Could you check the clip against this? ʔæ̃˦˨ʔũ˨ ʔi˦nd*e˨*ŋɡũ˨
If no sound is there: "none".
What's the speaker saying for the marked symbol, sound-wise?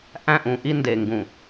e˨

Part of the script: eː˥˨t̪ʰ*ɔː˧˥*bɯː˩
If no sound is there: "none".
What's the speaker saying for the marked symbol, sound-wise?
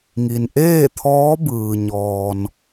ɔː˧˥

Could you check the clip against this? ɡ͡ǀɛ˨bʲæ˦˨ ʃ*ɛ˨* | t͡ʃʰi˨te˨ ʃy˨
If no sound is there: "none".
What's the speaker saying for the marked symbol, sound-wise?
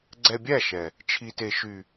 ɛ˨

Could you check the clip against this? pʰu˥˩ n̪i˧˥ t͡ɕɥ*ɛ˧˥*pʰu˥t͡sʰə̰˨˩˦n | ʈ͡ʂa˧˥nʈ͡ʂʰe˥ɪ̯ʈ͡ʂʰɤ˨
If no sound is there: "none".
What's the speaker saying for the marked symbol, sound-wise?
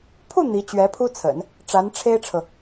ɛ˧˥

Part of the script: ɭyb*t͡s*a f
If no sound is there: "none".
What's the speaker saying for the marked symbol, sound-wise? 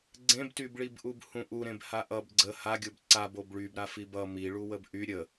ɾ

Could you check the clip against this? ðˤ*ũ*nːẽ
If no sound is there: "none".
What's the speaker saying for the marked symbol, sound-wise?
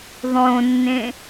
õ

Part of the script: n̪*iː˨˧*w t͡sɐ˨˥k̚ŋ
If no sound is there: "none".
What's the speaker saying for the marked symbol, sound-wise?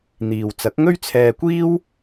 iː˨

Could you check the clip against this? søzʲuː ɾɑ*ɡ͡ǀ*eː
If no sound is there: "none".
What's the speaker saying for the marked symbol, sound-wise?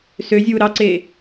ǀ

